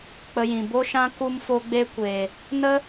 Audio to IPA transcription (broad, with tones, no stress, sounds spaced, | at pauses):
k͡p ə˧ j ĩ˨ b o˦ ʃ ã˦ k u˦ m f o˦ ɡ͡b e˦ kʷ eː˨ | n ə˦